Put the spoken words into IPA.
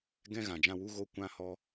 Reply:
ɡ ɛ̃˦ ɣ ã˨ d͡ʒ ã˧ w u˦ ɣ o˧ kʷ ã˧ h ɔ˧

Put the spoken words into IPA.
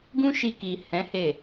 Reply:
ɡ ũ˦ ʃ i˧ k i˨ h ɛ̃˨˦ h e˦˨

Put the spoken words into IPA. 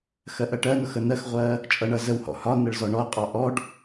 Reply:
x ɜ ʔ ɜ ʈ ɜ n ʊ x ə n ɜ x ʁʷ ɜ | t͡ʃʼ ʌ ɳ ʌ z ə w h ɔ̰ h ɒ n ə ɭ z ɔ ɳ ɔ ɐ̯ qʼ ɑ ʔ ɔ ɖ

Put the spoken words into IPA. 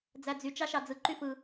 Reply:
d͡z æ d͡z y t͡ʃ ɑ ʃ ɑ d͡z ɯ ǃ y f ɯ

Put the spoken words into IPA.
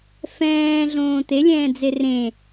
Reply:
f ɛ̃ː ɮ õː t̪ e lʲ ɛ̃ː d͡z e r ẽ

